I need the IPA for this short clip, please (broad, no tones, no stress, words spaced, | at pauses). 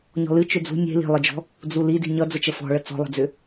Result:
ɲɔ̤lɨ t͡ʃʏd͡zṳ nʲe̤ li̤lˠɨd͡ʒɔ̤ | d͡zuli di̤ɲʌ d͡zət͡ʃəfɔ̤ɭə t͡sɔ̤lˠə̤d͡zʏ